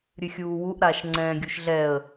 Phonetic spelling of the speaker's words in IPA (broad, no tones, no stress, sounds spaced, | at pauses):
ɾʲ ɨ xʲ uː w u ʔ ɾ aː ʃ ŋ͡ǀ ɛ̃ː ɡʲ u ʃ ɮ ɛ ə̯